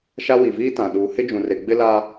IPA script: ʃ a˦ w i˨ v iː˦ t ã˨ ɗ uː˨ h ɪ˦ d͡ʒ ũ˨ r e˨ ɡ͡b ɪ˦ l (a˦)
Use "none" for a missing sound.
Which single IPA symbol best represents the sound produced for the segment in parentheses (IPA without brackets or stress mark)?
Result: a˦